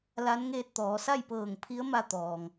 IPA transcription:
l a˧˥ n ŋ eː˧ t̚ t̪ ɔː˩˧ s a˥˨ j p ɤː˧˩ ŋ pʰ i˧˥ ə̯ m a˧ t̪ ɔː˩ ŋ

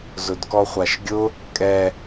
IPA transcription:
z ʊ d k ɔ χʷ a ʃ ɡʲ ʊ | kʼ ɛ

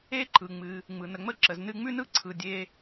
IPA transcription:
e˥ ǃ ɯ˩ ŋ͡m ɨ˩ | ŋ͡m ɯ˩ n ə˩ ŋ͡m ə˥ ǁ ə˩ z n ɨ˧ ŋ͡m ʉ˥ n ɯ˥ ǀʰ ɯ˩ dʲ e˧

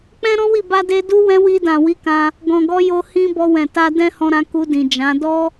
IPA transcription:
k͡p ɛ̃˦ ɾ ɔ̃˦ w i˦˨ b a˧ d e˧ d u˦ w ɛ̃˦ w i˧ d ã˨ w i˨˦ k ã˧ | ɡ ɔ̃˨ ɡ ɔ˧ j o˧ h ĩ˦ b ɔ˧ w ɛ̃˨ t a˧ d ɛ̃˦ h ɔ̃˧ ɾ ã˧ k u˧ d ĩ˨ d͡ʒ ã˨˦ d ɔ˦

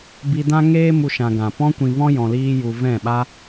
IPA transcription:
b i˨ d ã˧ ŋ eː˧ m u˨ ʃ ã˨ ɡ ã˨ p ɔ̃˦ kʷ ĩ˨ v ɔ̃˧ j ɔ̃˨ l iː˧ j u˨ v ɛ̃˦˨ ɓ a˦

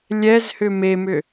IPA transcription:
lʲ ɛ z h ʏ m e m ʏ

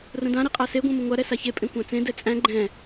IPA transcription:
r ə̃ d ã ɾ i qʼ a s e ɡʷ ɛ̃ m ə ŋʷ a ɾ ɛ s a ç e pʼ ẽ kʷ ã t͡s ẽ d ɛ t͡sʼ æ̃ ɡ͡ǃ ɛ̃

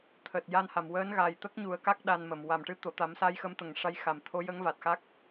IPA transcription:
t̪ʰ əː˨˩ t̚ j a˧ n h a˨˩˨ m w əː˧˥ n ɣ a˨˩ j t̪ ə˦˥ k̚ ɲ u˨˩˦ ə̯ k a˦˥ k̚ ɗ a˧ n m ə˨˩ m w a˨˩ m ʈ ɨ˧˥ t̪ o˨˩˨ t̪ a˨˩˦ m s aː˧˥ j x ə˧˥ m t̪ ə˨˩ ŋ ʂ a˧˥ j x a˨˩˨ m t̪ʰ o˧˥ j ə˧˥ ŋ v a˨˩ t̚ x a˦˥ k̚

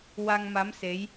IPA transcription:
w a˧ ŋ m a˧˥ m s e˧˥ j

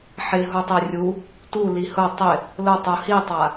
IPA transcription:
ħ ɪ ɦ u tˤ e rʲ u | t u l i h ʊ tˤ ɪ | l ʊ tˤ u h i tˤ a

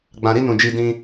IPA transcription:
ɡ͡b ã˧ ɾ i˦ n ũ˧ d͡ʒ i˦ d ĩ˦

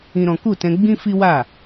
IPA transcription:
ĩ˦ ɾ ɔ̃˦ k u˦˨ t ɛ̃˧ ɡ͡b ĩ˦ f i˦ w a˦˨

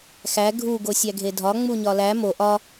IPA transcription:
x æ ɡʱ u ɡ o sʲ æ ɡʱ e dʱ ɒ ŋ͡m u ɲ ɒ l æ m o ʔ ɒ

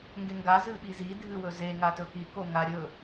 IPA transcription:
ŋ ɡ e ŋ ɡ a z ɨ ɓ i z i dʱ ɨ w ɵ z e ŋ a t ɵ k i k o ŋ a ɾʲ ɵ

